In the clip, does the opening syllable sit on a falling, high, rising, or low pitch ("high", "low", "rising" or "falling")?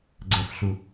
low